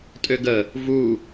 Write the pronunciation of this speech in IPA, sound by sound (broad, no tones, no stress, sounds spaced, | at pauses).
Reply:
tʼ ø ɡ ə | v u